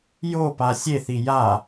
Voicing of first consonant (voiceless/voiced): voiced